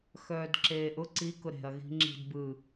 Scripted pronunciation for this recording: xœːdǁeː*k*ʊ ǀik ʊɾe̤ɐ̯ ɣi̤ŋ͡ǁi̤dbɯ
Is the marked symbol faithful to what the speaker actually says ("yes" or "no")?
no